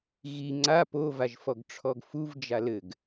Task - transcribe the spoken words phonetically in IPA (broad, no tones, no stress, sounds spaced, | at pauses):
ɣ i ŋ͡ǀ a p o v a ʒ f ɔ ɡ ʈ͡ʂʰ ɔ ɡ f u v d͡ʒ a l ɘ ɡ